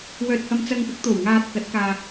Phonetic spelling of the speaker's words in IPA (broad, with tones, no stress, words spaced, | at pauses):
wœː˨t̚hɐ˨m t͡sɐ˧ŋpɪ˨˥k̚t̪o˨˩w ŋaː˨t̚ kɐ˨˥t̚kaː˧